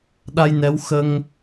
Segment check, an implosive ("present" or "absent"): present